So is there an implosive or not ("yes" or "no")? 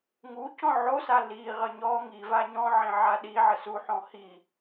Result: yes